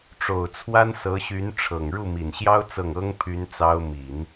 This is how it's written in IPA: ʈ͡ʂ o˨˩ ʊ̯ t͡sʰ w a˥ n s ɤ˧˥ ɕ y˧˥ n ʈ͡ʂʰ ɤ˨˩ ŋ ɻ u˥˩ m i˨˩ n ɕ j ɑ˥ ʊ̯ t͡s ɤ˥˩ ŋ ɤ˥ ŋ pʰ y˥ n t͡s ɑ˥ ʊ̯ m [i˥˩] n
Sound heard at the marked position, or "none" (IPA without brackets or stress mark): i˨˩˦